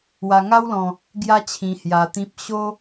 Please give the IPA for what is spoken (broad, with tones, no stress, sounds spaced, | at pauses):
w a˧ ŋ a˦ w l ɔ̃˧ | ɡ j a˦ t͡ɕʰ ĩ˧ h j a˧ t̪ ĩ˦ p̚ ɕ o˦